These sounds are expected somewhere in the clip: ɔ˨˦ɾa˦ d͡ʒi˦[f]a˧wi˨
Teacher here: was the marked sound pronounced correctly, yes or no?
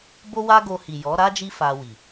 yes